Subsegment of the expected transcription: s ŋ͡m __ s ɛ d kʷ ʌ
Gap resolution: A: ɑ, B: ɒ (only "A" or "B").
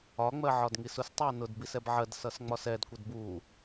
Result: B